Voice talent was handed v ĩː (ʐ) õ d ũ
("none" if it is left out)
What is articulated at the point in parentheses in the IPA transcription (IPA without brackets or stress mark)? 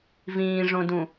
ʐ